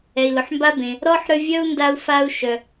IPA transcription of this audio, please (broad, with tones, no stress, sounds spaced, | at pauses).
ɛ˨ i̯ l ʊ˨ ħ m b a˥ b ẽ˩ | ɾ ɔ˥ ħ ɾ ʏ˦ vʲ œ˥ u̯ n d a˦ u̯ f a˦ u̯ ʃ œ˩